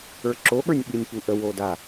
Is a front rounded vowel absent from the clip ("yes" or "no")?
yes